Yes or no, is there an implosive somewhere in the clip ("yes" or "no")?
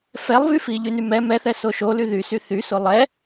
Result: no